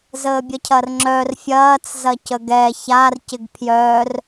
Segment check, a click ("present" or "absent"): present